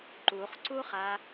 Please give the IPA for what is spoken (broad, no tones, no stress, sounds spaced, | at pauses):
ǃ u χ ǀ u χ a